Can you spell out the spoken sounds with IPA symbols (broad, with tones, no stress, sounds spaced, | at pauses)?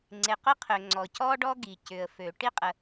ŋ͡ǀ e˩ q ʊ˥ qʰ ø˩ ŋ͡ǀ ɔ˩ c ɔ˥ ɖ ɔ˥ ɡ i˩ c ʏ˩ ə̯ f ø˩ ʈ i˥ qʼ ə˩